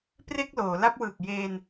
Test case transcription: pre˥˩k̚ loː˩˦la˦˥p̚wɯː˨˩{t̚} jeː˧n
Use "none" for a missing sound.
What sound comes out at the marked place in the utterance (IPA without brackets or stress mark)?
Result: k̚